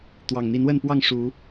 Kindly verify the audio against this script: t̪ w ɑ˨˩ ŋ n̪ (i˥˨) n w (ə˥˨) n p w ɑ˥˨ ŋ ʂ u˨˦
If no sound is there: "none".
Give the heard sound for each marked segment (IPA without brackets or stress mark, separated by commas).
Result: i˨˦, ə˥˨